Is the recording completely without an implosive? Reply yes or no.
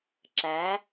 yes